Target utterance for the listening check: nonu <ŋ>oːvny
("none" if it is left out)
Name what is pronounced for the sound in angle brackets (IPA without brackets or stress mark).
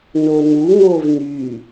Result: ŋ